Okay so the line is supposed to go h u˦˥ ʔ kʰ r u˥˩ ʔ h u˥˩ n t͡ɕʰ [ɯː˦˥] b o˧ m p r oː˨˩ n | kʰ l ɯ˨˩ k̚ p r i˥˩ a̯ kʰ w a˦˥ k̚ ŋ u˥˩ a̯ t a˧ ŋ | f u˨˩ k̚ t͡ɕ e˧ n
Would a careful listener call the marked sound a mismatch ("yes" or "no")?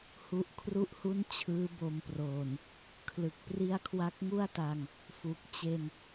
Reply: no